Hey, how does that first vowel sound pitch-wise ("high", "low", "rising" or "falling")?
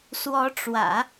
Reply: rising